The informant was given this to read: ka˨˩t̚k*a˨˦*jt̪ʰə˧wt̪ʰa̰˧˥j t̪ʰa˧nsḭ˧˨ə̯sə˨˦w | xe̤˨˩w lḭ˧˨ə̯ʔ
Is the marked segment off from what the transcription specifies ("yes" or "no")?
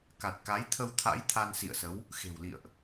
no